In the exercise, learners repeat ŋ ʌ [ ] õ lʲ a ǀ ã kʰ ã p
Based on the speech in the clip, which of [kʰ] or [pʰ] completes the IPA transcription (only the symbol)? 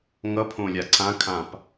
pʰ